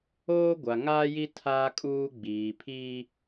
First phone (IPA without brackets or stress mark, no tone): oː